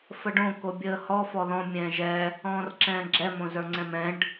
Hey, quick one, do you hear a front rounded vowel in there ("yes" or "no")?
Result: no